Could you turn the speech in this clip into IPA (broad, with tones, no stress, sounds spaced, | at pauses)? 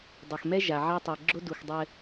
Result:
dˤ ɐ˨ x m ɛ˦ ʒ a˨ ʕ a˦ tˤ ɛ˨ ɡ͡ǁ o˦ d u˨ x dˤ ɘ˦